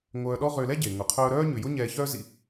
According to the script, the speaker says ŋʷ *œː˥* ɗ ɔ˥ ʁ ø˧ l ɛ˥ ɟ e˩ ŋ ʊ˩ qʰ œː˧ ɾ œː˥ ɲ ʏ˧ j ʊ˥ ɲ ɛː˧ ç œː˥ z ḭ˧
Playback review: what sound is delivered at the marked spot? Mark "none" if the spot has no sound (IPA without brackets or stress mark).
œː˧